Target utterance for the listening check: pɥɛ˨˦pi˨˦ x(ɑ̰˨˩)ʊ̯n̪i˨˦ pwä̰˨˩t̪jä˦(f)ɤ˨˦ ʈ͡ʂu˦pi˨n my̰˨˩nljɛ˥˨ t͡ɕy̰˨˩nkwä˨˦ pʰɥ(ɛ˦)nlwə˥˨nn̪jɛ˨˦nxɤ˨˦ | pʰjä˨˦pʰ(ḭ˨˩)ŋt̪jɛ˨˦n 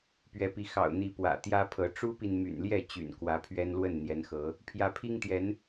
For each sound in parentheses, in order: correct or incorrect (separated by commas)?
correct, incorrect, correct, incorrect